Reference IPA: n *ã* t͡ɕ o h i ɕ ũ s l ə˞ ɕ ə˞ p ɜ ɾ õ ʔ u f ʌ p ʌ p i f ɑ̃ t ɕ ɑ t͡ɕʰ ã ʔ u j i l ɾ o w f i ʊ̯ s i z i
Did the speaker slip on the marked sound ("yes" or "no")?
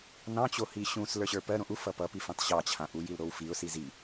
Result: yes